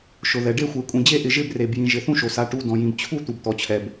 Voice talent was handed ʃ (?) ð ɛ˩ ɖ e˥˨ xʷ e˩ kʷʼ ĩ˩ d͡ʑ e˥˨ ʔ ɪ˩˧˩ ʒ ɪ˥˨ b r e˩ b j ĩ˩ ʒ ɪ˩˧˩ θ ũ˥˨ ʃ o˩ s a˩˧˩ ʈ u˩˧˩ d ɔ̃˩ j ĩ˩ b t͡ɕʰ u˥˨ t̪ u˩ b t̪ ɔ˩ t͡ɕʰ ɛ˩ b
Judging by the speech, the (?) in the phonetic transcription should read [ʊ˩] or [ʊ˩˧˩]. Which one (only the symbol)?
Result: ʊ˩